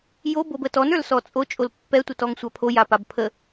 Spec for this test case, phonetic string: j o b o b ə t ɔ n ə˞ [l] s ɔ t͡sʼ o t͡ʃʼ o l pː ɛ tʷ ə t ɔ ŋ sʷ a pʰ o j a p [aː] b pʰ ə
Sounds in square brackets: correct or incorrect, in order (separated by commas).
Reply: correct, incorrect